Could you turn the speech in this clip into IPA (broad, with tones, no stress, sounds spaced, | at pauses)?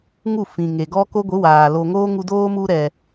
ŋ u˦˨ f ĩ˨ ŋ e˨ ɡ ɔ˦ k o˦ ɡʷ ɨ˨˦ w aː˨ l o˨ ŋ oː˦ ŋ u˧ d oː˦ m u˧ ɾ ɛ˨